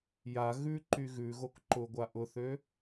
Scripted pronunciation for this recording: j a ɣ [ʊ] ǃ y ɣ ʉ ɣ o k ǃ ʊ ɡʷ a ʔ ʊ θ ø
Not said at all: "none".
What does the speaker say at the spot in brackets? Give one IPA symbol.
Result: ʉ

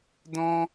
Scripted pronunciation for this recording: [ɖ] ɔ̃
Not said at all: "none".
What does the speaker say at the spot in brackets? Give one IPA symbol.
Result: d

